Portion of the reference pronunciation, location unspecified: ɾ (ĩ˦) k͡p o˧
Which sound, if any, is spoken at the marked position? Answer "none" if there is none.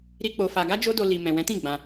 i˦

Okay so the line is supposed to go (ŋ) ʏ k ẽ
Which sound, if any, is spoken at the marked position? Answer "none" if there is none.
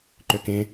ǃ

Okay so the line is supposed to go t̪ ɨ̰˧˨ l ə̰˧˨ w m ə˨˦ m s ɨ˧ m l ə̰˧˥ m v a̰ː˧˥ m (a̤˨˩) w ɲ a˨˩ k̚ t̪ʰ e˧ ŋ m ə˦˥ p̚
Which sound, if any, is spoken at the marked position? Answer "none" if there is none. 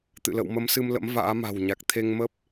a̤˨˩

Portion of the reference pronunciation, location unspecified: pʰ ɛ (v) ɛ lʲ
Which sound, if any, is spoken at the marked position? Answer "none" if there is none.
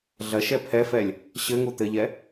f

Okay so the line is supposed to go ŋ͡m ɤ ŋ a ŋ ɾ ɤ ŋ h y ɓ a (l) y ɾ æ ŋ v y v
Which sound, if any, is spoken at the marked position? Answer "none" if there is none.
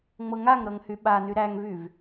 n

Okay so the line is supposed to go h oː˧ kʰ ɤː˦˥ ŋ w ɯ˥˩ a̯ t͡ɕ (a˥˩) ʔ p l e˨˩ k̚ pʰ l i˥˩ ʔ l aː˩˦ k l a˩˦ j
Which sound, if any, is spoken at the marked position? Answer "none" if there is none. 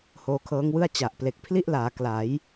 a˨˩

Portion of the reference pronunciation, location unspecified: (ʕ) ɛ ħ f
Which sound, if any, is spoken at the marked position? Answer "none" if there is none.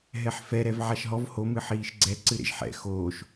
ɦ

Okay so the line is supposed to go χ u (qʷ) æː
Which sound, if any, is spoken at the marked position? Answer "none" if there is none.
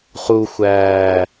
xʷ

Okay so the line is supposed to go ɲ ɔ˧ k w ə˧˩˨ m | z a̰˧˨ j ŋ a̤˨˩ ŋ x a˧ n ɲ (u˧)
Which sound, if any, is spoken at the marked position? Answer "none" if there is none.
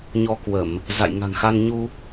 u˧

